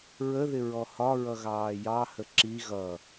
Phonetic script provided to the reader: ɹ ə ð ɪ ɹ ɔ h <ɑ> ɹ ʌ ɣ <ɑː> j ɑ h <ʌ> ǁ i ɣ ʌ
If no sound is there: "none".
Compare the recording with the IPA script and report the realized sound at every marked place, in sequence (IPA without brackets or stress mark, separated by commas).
ɒ, ɑː, ə